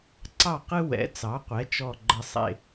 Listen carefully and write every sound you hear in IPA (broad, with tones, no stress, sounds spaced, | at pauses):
ǀ ɑ˥˩ q ɨ˥ w ɛ̰˩˥ t͡s ɑ˩˥ qʷ ɛ˩˥ t͡ʃ ɔ˨˩ ɡ͡ǃ ə˨˩ sˤ ḛ˨˩